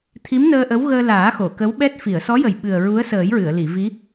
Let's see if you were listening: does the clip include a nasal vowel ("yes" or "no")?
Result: no